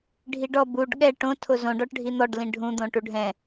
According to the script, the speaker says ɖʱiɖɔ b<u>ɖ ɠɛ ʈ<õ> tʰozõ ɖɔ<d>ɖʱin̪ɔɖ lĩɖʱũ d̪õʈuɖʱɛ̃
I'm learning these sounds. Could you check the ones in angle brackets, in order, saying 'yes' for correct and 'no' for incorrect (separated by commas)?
yes, yes, no